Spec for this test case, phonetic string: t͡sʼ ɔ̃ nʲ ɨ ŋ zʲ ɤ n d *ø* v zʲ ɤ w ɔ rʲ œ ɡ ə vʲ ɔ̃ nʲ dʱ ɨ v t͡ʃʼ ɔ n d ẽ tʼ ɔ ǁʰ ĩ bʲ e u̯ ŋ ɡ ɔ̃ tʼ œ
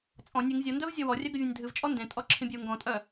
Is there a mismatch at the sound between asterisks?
yes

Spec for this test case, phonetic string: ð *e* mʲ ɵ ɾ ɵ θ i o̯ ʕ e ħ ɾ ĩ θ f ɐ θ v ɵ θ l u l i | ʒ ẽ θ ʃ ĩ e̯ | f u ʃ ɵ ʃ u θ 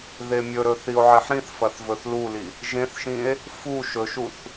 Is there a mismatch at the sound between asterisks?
no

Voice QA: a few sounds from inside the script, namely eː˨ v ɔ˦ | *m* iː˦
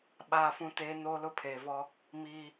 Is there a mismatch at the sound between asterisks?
no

